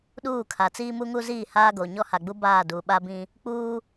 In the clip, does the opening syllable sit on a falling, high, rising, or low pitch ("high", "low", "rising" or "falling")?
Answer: falling